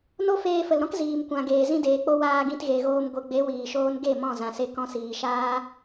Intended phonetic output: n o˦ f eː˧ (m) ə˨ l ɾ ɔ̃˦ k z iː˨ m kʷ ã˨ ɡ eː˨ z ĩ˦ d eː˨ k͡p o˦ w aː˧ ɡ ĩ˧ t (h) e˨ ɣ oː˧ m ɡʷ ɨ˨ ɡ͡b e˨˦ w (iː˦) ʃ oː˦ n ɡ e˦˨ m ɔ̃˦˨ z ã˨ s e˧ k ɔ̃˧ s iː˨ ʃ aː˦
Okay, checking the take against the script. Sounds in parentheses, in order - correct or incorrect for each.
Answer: incorrect: f, incorrect: ɣ, incorrect: iː˨

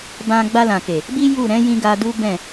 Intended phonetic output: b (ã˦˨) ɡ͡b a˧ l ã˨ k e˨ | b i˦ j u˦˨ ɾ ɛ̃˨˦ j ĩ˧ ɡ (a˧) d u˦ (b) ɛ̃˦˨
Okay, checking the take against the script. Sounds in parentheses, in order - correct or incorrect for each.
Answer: incorrect: ã˧, correct, correct

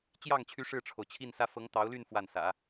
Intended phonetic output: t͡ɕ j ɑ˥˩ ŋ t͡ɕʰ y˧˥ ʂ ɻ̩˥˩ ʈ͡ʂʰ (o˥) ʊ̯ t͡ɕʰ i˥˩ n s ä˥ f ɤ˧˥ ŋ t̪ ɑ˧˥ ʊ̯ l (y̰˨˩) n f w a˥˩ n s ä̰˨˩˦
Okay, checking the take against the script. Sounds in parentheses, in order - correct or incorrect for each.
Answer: incorrect: o˩, incorrect: y˥˧

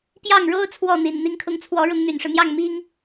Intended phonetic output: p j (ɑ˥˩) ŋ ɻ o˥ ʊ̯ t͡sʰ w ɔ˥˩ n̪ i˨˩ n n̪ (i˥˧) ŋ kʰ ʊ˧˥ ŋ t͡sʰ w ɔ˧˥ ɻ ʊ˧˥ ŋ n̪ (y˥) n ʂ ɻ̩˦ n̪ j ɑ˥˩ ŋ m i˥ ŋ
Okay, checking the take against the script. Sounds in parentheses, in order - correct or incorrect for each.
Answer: correct, incorrect: i˧˥, incorrect: y˨˩

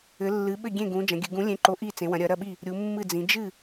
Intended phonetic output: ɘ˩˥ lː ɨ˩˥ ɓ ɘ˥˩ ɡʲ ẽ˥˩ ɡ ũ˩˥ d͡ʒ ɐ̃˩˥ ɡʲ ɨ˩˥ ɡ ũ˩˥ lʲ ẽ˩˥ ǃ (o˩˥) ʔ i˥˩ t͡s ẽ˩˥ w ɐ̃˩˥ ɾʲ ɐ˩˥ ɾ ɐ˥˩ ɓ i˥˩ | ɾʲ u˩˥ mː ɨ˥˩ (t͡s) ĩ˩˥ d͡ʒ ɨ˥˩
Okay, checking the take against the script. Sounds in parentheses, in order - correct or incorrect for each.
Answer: correct, incorrect: d͡z

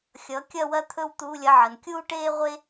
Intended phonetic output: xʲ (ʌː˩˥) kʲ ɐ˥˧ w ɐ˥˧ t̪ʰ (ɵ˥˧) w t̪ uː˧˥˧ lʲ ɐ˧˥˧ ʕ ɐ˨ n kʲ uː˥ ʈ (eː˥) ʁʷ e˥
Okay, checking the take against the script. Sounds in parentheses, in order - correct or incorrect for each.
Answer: correct, correct, correct

